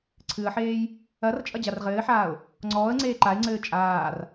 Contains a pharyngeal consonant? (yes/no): yes